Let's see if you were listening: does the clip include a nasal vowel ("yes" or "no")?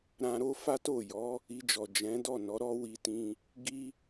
yes